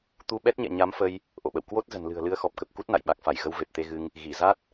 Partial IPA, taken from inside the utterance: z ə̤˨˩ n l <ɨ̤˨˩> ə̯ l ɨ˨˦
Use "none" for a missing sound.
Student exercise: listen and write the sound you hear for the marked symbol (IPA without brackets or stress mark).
ɨ̤˨˩